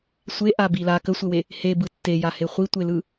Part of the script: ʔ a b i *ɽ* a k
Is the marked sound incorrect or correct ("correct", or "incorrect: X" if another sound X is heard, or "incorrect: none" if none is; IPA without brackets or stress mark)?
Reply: incorrect: l